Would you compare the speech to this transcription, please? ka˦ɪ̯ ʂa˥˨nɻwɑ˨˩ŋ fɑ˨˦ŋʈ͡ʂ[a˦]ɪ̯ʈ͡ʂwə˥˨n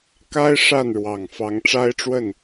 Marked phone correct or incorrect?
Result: correct